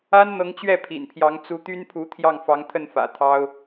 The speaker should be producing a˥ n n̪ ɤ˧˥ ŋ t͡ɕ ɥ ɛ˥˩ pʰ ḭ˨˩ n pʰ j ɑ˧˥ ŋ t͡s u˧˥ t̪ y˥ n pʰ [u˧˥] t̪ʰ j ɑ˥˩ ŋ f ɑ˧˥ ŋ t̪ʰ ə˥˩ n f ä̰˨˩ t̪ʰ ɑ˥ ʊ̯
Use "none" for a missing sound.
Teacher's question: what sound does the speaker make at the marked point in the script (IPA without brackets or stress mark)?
u˧˥